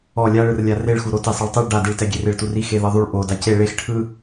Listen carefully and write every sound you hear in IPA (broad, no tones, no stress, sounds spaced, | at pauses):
ɔ lʲ a ɭ ɯ r lʲ a r e ɭ x u ɾ o t e sˤ ɛ ɭ tˤ ɯ ɭ ɖ a d i ɭ t ɛ ɡʲ e r e ɭ t u r i x e ð ɤ ðˤ u ɭ ʔ o d a c e ɭ e x ʈʰ ɯ